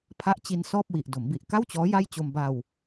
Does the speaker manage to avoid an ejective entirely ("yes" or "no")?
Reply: yes